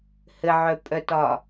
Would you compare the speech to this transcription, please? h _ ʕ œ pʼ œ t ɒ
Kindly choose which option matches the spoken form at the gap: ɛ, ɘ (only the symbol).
ɘ